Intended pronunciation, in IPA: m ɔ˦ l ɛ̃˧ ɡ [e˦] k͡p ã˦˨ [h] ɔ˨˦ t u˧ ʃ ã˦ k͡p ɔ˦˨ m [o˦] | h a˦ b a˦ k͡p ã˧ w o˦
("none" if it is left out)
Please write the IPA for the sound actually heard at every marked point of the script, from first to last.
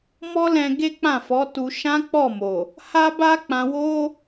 e˦, f, o˨

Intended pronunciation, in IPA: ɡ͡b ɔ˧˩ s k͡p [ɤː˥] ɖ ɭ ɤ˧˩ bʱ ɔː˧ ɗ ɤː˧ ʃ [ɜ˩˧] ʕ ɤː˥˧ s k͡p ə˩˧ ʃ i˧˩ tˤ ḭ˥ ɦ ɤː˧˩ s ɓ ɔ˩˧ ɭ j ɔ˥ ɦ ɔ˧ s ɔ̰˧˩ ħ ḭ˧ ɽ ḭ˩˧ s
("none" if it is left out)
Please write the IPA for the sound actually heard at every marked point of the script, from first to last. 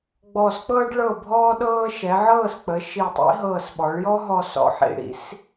ɤː˥, ɛ˩˧

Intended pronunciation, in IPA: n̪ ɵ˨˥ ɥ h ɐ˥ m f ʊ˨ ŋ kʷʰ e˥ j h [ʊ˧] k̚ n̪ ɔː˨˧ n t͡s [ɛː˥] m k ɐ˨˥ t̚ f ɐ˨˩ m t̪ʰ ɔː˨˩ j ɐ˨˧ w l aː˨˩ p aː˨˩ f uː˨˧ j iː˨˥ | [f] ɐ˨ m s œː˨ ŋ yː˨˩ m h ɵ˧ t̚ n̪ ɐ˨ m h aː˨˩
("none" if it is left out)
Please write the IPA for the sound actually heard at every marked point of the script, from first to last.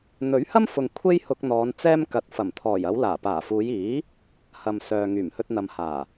ʊ˧, ɛː˥, h

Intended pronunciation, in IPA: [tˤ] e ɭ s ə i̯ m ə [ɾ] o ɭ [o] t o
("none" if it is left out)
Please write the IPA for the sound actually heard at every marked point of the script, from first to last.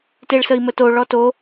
t, t, ɔ

